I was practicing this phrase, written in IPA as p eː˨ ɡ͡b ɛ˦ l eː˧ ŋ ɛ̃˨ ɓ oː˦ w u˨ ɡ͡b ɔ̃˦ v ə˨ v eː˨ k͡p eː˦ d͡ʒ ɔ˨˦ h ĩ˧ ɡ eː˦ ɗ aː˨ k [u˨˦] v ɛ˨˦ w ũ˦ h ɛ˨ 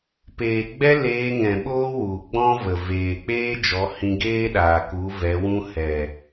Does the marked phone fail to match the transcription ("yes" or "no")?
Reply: no